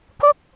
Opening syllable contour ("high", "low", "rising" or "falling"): falling